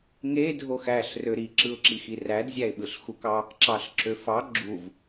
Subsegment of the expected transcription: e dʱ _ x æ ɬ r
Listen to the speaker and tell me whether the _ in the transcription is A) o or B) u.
A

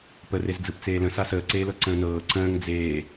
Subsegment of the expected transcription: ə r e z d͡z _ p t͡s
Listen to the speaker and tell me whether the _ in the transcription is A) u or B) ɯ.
B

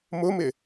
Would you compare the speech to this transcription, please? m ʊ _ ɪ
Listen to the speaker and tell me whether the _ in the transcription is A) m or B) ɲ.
A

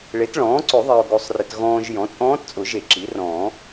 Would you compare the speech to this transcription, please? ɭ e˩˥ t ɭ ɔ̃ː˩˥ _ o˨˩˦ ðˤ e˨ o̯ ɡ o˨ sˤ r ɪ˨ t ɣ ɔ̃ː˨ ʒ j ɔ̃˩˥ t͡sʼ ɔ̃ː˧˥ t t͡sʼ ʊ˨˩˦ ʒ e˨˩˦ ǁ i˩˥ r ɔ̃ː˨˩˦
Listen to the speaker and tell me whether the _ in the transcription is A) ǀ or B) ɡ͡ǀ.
A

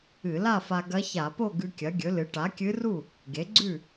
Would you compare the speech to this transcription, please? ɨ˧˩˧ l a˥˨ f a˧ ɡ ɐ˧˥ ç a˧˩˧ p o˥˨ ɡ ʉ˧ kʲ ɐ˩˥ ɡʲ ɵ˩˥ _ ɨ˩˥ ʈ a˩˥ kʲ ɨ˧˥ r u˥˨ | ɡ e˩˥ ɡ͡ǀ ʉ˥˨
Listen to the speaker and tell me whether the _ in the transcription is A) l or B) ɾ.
A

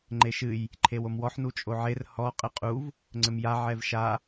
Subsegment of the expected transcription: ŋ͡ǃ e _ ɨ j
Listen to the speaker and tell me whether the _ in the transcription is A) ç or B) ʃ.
B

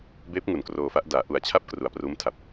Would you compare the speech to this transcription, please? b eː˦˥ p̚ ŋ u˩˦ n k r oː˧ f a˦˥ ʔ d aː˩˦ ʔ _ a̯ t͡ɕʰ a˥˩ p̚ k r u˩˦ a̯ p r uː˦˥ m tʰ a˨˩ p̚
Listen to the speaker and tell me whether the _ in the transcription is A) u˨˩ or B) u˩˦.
A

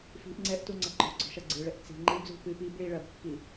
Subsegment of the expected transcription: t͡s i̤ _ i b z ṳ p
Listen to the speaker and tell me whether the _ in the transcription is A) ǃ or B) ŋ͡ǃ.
B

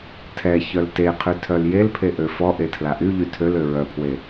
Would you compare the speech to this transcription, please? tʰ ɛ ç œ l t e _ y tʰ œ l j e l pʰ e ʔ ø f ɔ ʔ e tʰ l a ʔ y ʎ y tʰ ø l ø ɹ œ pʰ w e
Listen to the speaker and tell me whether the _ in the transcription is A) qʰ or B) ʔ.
A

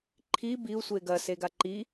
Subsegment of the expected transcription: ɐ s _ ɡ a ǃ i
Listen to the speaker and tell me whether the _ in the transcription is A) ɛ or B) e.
B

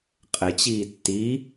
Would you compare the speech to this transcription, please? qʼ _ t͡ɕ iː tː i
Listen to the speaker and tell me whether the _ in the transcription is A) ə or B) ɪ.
B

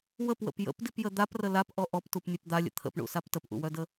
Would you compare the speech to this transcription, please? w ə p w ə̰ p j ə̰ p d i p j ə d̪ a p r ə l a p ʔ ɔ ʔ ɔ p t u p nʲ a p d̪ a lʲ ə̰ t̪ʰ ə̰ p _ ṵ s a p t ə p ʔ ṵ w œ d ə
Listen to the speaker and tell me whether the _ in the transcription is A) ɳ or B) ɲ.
A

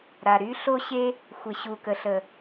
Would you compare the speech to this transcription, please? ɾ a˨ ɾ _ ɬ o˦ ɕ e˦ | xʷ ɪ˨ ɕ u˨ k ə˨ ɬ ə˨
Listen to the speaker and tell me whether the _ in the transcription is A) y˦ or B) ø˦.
A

